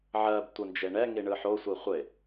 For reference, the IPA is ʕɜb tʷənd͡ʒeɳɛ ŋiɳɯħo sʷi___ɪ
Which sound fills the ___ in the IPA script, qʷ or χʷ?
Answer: χʷ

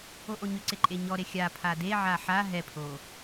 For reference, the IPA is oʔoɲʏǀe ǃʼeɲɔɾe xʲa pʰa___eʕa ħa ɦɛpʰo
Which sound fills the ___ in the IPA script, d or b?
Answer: d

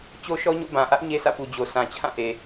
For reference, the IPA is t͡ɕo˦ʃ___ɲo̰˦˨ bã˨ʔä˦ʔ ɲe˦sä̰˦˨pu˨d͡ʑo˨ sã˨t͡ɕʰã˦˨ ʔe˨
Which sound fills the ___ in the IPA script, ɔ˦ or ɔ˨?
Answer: ɔ˦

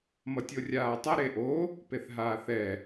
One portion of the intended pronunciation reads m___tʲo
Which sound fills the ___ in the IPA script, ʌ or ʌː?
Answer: ʌ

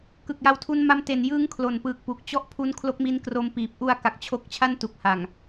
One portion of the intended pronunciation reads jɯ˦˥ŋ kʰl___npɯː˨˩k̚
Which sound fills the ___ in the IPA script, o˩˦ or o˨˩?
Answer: o˨˩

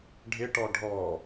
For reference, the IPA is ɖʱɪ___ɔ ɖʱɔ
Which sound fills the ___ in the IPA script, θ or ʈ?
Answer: ʈ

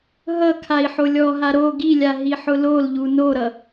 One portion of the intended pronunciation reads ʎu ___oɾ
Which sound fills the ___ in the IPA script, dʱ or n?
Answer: n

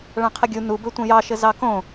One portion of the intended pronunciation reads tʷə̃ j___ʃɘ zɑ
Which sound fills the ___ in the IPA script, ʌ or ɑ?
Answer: ɑ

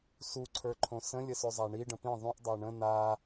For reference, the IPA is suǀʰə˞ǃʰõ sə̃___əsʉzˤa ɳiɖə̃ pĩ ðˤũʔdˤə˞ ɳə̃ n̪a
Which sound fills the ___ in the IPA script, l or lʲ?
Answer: lʲ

